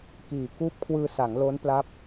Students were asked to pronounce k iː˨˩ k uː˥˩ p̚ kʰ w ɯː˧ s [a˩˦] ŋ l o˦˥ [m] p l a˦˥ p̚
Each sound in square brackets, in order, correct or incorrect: correct, incorrect: n

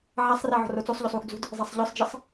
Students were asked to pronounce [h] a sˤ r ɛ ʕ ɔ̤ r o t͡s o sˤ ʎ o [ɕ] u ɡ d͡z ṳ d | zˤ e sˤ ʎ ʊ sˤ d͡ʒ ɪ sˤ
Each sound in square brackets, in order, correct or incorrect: incorrect: ʕ, incorrect: sˤ

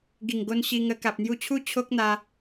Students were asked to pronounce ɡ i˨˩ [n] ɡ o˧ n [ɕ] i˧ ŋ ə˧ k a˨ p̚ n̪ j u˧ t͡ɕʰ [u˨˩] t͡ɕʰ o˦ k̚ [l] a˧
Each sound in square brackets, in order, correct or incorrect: incorrect: ŋ, correct, incorrect: u˦, incorrect: n̪

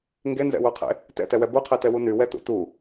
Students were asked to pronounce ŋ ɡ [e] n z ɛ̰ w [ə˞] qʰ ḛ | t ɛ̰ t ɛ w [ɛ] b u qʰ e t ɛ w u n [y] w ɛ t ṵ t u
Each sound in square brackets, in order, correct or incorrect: correct, correct, correct, correct

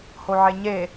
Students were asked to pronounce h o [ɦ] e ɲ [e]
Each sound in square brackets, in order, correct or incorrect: incorrect: ʕ, correct

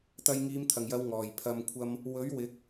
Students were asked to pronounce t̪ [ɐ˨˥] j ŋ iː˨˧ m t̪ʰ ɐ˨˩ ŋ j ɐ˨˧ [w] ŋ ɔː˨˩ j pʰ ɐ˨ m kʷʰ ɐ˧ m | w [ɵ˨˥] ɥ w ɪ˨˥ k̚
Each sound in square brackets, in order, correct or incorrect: incorrect: ɐ˧, correct, correct

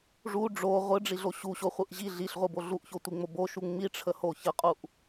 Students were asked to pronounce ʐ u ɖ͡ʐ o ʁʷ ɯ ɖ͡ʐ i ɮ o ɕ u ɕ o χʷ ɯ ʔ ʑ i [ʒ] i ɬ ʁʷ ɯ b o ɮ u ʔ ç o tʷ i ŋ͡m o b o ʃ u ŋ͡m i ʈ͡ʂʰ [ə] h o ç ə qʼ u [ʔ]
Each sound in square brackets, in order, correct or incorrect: incorrect: ɮ, correct, correct

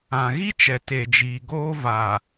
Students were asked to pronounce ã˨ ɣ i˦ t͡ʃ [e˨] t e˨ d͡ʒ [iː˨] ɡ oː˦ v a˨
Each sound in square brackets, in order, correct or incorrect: incorrect: ɛ˨, correct

